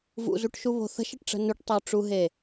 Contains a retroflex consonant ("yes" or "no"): yes